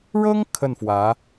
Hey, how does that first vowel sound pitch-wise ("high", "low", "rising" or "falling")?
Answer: high